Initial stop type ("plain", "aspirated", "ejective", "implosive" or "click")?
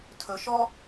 aspirated